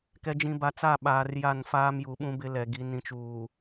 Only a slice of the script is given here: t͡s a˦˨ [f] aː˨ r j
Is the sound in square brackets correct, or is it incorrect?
incorrect